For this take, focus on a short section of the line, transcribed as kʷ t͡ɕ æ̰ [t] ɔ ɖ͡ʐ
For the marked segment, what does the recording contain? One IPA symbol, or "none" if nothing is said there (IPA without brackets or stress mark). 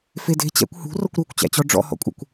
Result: t͡ɕ